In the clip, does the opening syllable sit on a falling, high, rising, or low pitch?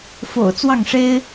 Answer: low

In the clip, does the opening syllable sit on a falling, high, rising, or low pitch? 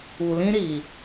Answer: low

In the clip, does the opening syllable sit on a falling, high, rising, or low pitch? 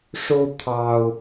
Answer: high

